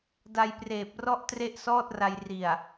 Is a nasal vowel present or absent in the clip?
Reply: absent